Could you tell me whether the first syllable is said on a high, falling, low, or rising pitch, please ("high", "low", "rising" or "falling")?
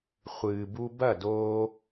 low